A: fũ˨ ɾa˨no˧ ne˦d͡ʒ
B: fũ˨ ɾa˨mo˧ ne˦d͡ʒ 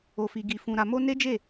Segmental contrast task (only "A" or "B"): B